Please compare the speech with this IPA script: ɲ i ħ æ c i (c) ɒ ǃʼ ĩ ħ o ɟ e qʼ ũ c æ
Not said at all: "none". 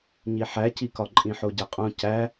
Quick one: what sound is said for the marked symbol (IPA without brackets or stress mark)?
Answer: k